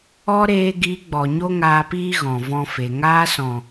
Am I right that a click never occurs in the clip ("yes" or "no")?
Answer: yes